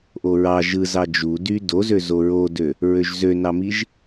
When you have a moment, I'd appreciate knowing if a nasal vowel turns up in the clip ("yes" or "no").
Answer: no